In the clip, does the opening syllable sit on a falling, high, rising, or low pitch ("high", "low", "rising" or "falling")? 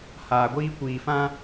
low